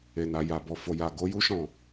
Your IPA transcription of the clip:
e˨ n a˨ j a˨ b ɔ˨ f o˨ j a˨ ɡ o˨˦ j u˦ ʃ ɔ̃˦˨

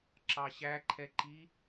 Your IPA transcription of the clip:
ǁ ɑ ɕ æ ǃʰ ɛ ǃ i

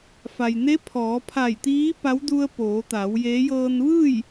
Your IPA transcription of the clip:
f a˩ j n e˧˥ pʰ ɔː˩˧ pʰ a˧˩ j t̪ iː˧˥ p a˧˥ w d u˧ ə̯ p oː˩˧ t̪ a˩˧ w j e˧˥ j ɤː˧ n ʋ ɯː˥˨ j

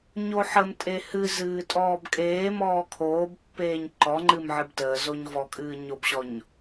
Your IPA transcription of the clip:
ɲ o ħ ə m tʼ e h ɨ z ɨː tʼ ɔː b kʼ eː m ɔː kʰ oː b pː eː ɲ ǃ ɔ ŋ͡ǃ ɨ m ʕ ɨ b t əː z o ɲ v ɔ kʼ ɨː ɲ o b ɕ ɔ ɲ

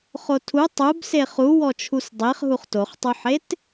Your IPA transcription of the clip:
χ o tʰ u tˤ u b s e χ u w ɔ t͡ʃʰ u s dˤ e χ ɦ u χ t o χ tˤ u ħ e t

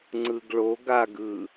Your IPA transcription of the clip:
ŋ͡ǀ ɯ ɡ ɭ o ɡ a ɡ ɯ

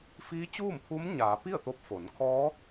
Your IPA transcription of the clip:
f iː˧˥ t͡ɕ uː˥˨ m pʰ u˧˥ m ɲ aː˩˧ p i˥˨ ə̯ t̪ o˧ p̚ f o˩˧ n kʰ ɔː˧˥

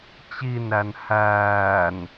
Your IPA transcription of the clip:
t͡ɕ i n ɾ æ n h æː n

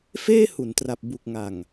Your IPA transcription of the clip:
f eː˥˩ h u˩˦ n t r a˨˩ p̚ b u˨˩ k̚ ŋ a˨˩ ŋ

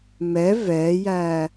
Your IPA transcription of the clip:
m ɛ v ɛː j æː

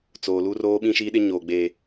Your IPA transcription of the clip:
t͡s oː˨ l u˦ r oː˦ ɓ ĩ˦ ʃ iː˦ ɗ ɪ˦ ɲ oː˨ ɡ͡b eː˨

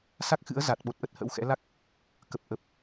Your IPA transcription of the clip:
s a˦˥ k̚ x ɨ̰˧˥ ə̯ z a˨˩ t̚ ɓ o˨˩ t̚ ʔ ə˦˥ t̚ h ə̰˧˥ w x ɛ̰˧˥ l a˦˥ k̚ | k ə˨˩ p̚ ʔ ə˨˩ p̚

